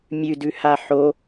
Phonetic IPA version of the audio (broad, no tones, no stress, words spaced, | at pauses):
mʲʉdʉha ħo